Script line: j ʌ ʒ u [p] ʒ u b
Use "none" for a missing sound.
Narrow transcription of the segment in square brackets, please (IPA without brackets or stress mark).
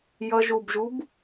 b